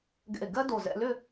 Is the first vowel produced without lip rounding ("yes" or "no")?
yes